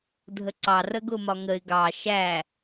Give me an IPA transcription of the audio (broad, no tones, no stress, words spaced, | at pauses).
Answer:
dʱəǀɑrə ɡʊmɒŋəɪ̯ ɡɑ ʃæ